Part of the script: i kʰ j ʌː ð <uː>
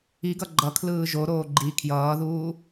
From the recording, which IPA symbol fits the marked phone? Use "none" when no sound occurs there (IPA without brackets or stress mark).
uː